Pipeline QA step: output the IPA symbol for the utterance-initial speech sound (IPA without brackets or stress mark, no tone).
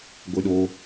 ɡʷ